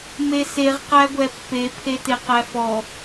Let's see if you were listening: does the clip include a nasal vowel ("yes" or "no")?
no